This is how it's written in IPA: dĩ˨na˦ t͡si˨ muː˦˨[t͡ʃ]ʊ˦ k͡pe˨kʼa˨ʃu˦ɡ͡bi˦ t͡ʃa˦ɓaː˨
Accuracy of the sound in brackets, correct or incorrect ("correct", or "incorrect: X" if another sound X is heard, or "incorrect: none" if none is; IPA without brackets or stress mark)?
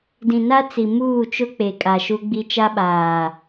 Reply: correct